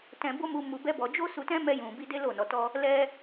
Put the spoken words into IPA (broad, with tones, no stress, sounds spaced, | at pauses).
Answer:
t ɛ̃˧ b o˦ m u˧ m u˧ b ɛ˦ b ɔ˧ d͡ʒ o˦ s u˧ t ɛ̃˦ m ɛ˧ j ũ˨ b i˧ d e˦ l o˦˨ n ɔ˧ t ɔ˦ | l ɛ˦